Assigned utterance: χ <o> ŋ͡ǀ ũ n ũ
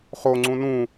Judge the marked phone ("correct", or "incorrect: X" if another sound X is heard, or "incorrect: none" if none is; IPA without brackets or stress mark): correct